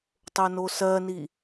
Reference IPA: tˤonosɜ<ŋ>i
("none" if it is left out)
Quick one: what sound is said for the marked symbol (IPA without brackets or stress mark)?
n